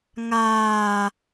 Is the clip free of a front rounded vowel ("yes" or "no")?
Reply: yes